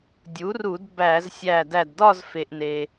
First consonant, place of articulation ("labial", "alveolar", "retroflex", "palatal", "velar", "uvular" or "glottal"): alveolar